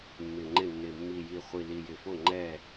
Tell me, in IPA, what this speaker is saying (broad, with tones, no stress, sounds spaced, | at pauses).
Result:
mː ɪ˨˩ ŋ͡ǃ ɪ˥˩ nː ɪ˨˩ mː i˨˩ j i˨˩ χʷ i˨˩ l i˨˩ j ɪ˨˩ f o˥˩ ŋ͡ǃ ɛ˥˩